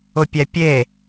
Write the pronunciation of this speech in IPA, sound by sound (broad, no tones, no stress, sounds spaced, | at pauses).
ʊ pʲ ɛ pʲ e